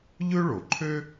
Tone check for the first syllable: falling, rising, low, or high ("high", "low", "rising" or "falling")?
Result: high